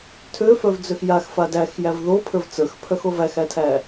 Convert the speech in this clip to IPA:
tʰ ø f œ v d͡z ø x j a x f a d æ x j æ v ð o pʰ ə˞ v t͡s ə˞ x pʰ œ x o v æ x æ tʰ æ

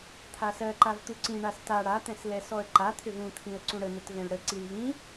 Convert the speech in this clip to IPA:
t̪ʰ a s ɜ ǃ a v t̪ u ǀ ĩ ɳ a s t a ɽ a t̪ ɛ̃ s l ɛ s ɔ ə̯ ǃ a t̪ʰ ʏ v ũ t̪ʰ ĩ ə̯ ǀ ũ ɽ ə n̪ ə t v ɛ̃ l ɽ ə ǀ i l v ĩ

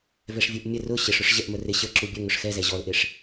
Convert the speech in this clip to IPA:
v ɛ ʂ vʲ u ʔ mʲ ə r ʊ ɕ ɪ ʂ ʊ ʂ ʑ ɛ ʔ m ə r ɪ ɕ ə ǁ u bʲ ə ŋ ʊ ʂ x ɛ z ɛ ʑ ɔ l ʔ ɪ ʂ

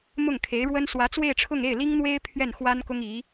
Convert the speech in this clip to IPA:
m ʊ˥˩ ŋ kʰ e˧˥ ɪ̯ ɻ w ə˥ n s w ä˧˥ t͡s w e˥˧ ɪ̯ ʈ͡ʂʰ ʊ˥˧ ŋ e˥˩ ɪ̯ l i˥ ŋ n̪ w e˥ ɪ̯ pʰ ɥ ɛ˥˩ n x w a˥ n k ʊ˥ ŋ i˧˥

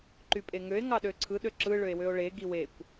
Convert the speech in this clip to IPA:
ǃ y pʼ e ŋ ø e̯ ŋ ɑ ɗ ø ǀʰ ɯ ɗ ø ǁ ɯ ɭ ø e̯ w ø o̯ ɭ e ɡ i w e kʷ

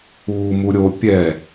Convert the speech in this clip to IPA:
uː m u ɾʲ o pʲ ɛ

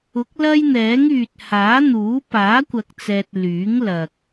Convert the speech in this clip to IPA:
ʊ˨˥ k̚ l ɐ˥ j n̪ ɛː˨˥ ŋ yː˨ t̚ h aː˨˥ n̪ uː˨˥ p aː˨˥ kʷ ɐ˨ k̚ t͡s ɛː˨ t̚ l yː˨˥ ŋ l ɐ˨ k̚

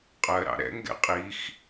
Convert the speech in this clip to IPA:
qʼ ɜ ɾ ɑ̰ ɾ ɛ̰ ŋ ɡ ɛ̰ qʼ i x

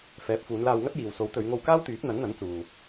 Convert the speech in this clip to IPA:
f ɛː˨˥ p̚ f uː˨˧ n l aː˧ w ŋ ɐ˥ t̚ j iː˨ w s o˨˥ w t̪ ɵ˨˧ ɥ ŋ o˧ w k aː˥ w t̪ yː˨˥ p̚ n̪ ɐ˨˥ n n̪ ɐ˨˥ n t͡s uː˨

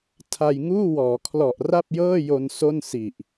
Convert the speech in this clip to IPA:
tʰ a˧ j ŋ uː˥˩ w ɔː˩˦ kʰ l ɔ˨˩ ʔ r a˥˩ p̚ j ɤː˥˩ j o˧ n s o˥˩ n s i˨˩ ʔ

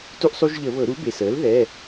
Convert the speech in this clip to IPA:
t u˦ ʔ sˤ u˦ ʒ ʎ ə˧˩˧ β ɤ˧˩˧ ɾ u˩˥ b e˩ s əː˩˥ l ð ɛ˩˧˩

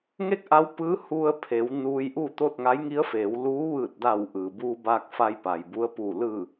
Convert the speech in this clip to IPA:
ŋ e˥˨ k̚ ʔ a˧˥ w p ɯː˧˥ h u˧ ə̯ pʰ e˩˧ w n uː˧ j ʔ u˥˨ t̪ o˥˨ t̚ ŋ a˧˥ j ŋ i˧˥ ə̯ f eː˩˧ w l uː˧˥ ʋ ɯː˧˩ t̚ d aː˧˩ w ʔ ɯː˩ b uː˧ b aː˧ k̚ f a˧ j p a˩ j b u˧˥ ə̯ p uː˧˩ l ɯː˧˩

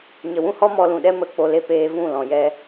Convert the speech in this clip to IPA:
ɲ ə˨ w ũ˦ h ɔ˦ m ɔ˧ l ũ˨ ɗ ɛ˦ m ə˧ k͡p o˧ l e˧ p eː˧ v ũ˦˨ l ɔ̃˨ j ɛ˦

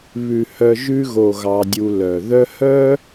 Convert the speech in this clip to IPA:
β ʉ˨ h œ˧ ʒ ʉ˧ ɣ o˨ ɣ ɑ˧ dʲ u˧ l œ˨ ð œ˦ h œ˦

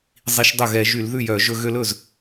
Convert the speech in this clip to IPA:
zˤ i˧˥ ʃ dˤ ɵ˥˩ ɣ ɛ˧˩˧ ʒ y˧˩˧ l ð ʉ˥˩ j œ˧˩˧ ʒ ɵ˧ ɣ ø˧ l ɵ˥˩ z

